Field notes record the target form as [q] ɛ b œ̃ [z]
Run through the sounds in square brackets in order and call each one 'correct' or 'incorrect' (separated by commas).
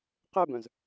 correct, correct